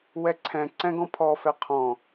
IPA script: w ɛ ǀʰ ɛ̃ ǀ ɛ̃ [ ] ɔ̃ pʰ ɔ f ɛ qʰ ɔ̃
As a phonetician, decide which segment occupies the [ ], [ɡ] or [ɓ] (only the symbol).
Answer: ɡ